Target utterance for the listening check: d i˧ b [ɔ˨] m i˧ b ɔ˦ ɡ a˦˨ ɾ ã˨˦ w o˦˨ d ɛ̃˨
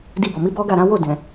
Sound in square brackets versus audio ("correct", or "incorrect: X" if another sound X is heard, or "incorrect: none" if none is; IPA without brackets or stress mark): correct